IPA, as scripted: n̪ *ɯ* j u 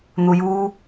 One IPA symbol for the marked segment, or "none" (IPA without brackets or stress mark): u